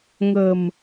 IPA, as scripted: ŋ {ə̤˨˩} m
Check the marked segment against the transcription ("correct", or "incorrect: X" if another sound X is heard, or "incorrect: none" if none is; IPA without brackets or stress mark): correct